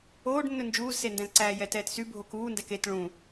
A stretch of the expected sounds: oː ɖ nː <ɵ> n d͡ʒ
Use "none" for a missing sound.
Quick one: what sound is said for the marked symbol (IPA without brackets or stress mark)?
ɵ